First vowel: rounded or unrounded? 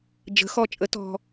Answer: unrounded